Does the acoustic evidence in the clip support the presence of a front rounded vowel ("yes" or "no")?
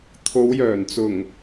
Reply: yes